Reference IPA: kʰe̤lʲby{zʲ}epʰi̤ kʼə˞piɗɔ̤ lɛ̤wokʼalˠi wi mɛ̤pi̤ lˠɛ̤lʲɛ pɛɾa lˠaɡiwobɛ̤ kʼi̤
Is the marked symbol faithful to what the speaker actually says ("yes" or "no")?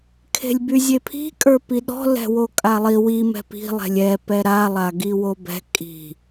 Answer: yes